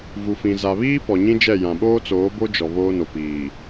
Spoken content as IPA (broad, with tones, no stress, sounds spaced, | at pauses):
v u˨ f ĩ˨ z a˨ β iː˦ p ɔ˨ ɲ ĩ˦ d͡ʒ ɛ˦˨ j ã˨ ɓ oː˦ t͡s oː˨˦ b o˦ d͡ʒ ɔ˨ β oː˦ n o˨ p iː˨